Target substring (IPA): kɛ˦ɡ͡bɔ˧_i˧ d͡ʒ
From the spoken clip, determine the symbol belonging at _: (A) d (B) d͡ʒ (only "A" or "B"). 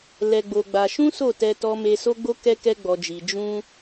B